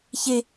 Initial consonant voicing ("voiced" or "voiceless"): voiceless